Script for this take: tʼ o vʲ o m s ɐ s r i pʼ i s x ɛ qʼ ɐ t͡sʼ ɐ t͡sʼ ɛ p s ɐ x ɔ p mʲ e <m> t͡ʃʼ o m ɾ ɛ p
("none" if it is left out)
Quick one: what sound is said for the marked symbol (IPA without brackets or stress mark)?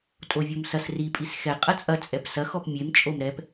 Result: m